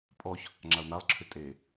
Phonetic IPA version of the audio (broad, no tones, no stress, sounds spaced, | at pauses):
pʼ ɔ ç | ŋ͡ǁ a ʊ̯ n̪ a lˠ ǁʰ ʏ tʼ e